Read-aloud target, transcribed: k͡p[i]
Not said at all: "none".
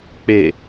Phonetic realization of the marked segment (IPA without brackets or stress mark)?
e